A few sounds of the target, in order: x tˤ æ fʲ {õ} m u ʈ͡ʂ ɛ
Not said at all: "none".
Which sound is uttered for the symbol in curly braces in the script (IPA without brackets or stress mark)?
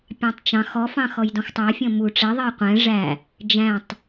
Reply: ɔ̃